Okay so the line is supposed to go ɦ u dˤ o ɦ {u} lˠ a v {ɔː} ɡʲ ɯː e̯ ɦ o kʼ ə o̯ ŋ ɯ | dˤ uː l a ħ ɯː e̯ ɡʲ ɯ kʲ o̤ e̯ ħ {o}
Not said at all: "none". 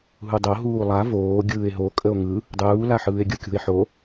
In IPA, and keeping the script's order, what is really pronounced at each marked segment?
uː, oː, o

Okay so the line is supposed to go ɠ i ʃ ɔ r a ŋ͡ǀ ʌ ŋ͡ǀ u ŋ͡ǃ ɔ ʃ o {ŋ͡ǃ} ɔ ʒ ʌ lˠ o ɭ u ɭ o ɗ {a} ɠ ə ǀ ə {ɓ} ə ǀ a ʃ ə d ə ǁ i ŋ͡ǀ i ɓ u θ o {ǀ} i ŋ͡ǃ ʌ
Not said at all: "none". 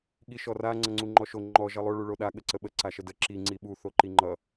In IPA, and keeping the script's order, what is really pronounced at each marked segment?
ŋ͡ǃ, a, ɓ, ǃ

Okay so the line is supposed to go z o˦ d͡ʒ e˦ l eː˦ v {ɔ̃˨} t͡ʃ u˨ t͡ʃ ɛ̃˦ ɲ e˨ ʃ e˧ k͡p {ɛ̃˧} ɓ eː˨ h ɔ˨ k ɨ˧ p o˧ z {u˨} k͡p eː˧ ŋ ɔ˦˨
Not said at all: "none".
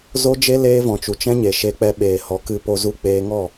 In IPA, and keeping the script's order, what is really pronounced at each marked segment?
ɔ̃˨, ɛ˧, u˧

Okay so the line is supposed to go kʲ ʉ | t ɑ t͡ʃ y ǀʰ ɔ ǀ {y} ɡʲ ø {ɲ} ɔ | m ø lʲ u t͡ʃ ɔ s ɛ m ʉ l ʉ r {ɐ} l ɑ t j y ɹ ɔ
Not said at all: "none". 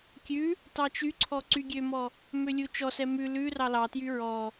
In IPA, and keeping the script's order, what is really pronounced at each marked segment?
y, m, ɑ

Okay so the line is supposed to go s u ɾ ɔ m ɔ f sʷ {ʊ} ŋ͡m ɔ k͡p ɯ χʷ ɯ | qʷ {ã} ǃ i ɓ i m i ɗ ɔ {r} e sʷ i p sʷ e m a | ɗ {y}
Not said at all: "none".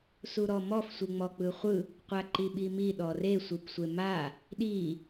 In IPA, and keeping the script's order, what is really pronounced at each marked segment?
ɯ, a, r, i

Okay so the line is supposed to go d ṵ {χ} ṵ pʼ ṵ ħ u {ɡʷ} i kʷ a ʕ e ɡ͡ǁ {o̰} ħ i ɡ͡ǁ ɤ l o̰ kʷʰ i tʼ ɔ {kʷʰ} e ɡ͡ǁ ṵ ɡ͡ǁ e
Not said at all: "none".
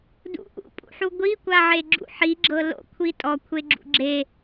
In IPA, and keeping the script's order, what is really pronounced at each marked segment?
ʔ, ɡʷ, ṵ, kʷʰ

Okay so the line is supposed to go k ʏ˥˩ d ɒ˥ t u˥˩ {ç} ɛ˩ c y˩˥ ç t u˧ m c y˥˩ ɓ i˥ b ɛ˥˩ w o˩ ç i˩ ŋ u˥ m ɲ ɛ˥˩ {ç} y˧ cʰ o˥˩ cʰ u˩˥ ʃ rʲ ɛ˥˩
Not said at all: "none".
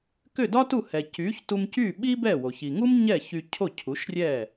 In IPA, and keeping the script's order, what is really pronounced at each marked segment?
h, ç

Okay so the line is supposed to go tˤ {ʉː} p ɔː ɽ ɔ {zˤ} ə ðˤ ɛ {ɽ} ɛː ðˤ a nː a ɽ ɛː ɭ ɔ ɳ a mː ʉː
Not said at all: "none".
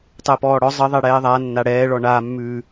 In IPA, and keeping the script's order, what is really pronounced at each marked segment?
əː, zˤ, ɽ

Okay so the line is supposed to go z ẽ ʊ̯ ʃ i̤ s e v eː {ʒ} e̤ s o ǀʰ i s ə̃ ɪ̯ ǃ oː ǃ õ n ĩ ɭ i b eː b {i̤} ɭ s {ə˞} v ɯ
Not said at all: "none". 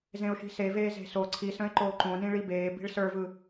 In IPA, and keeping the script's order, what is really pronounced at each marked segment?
z, i̤, ə˞

